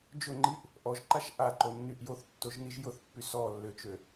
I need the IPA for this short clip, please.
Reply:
d͡ʒ ʊ ŋ͡ǃ i ʔ | ʔ ɔ ʒ ǃ a ʃ ʔ a ǃ o nː y ʔ j o θ tː o ʒ n i ʒ j ʊ θ pː y s ɔ lː ø t͡ʃ ø

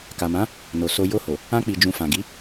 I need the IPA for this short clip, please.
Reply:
k a˨ m ã˨˦ | n o˨ s o˧ j o˧ h o˨ | ã˧ k͡p i˨ d͡ʒ ũ˨ f ã˨ ɡ i˨˦

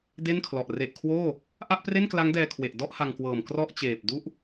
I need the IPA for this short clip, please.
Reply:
d e˥˩ n kʰ l ɔ˨˩ ʔ r e˨˩ ʔ kʰ w oː˥˩ | ʔ a˥˩ ʔ p r e˥˩ n k l a˦˥ ŋ d ɛː˧ kʰ w e˨˩ ʔ d ɔ˥˩ ʔ h a˧ ŋ k w ɤː˨˩ m k r ɔ˥˩ ʔ t͡ɕ eː˨˩ p̚ d u˦˥ ʔ

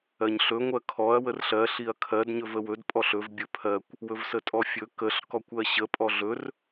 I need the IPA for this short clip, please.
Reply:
ɜ ɲ ɬ ɵ ŋʷ ɜ kʰ ɔ ɐ̯ w ə r ɬ ɜ ɬ i ɐ̯ kʰ ɜ d ɲ ɵ v ə w ɵ d pʼ ɔ ɬ ɵ v bʲ ɵ pʰ ɜ kʷ | w ɵ v s ə tʼ ɔ fʲ ɵ k ə ɬ k ɔ kʷ ɜ ɕ ə pʼ ɔ ɮ ɵ r

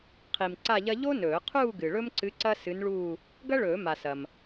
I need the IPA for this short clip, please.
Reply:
qʰ i˨ m ǀ a˥˧ ʎ ɐ˥ ʎ o˥ n ɵː˨˩˦ qʰ uː˥˧ ɡ ɨ˨ ɭ ɵ˥ m ǀ ɨ˧˥ ǀ ɐ˥ s ɨ˧˥ n ɭ uː˥˧ | ɡ ɐ˥ ɭ ɵː˨˩˦ m a˨ s ɐ˨ m

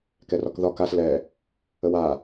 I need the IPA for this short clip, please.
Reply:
k ɛ r ɒ k ð ɒ k a s l ɛ | ə w a

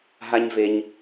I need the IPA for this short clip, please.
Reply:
ɦ a˦ ɲ v e˧ ɲ

